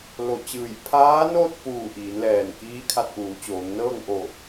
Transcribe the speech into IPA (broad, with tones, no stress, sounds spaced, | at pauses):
l o˧˩ t͡ɕ ɯː˧˩ j pʰ aː˧˥ n oː˥˨ t̚ p uː˧˩ ʔ iː˩˧ n l ɛː˧˩ n k iː˧˥ kʰ a˧ t̚ ʔ uː˩˧ t͡ɕ oː˩˧ ŋ n ɤː˥˨ ŋ ʔ o˧˩